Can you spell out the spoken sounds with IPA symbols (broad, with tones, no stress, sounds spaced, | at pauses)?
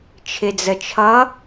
t͡ʃʰ ɪ˨ d͡z ə˨ t͡ʃʰ ʌ˧˥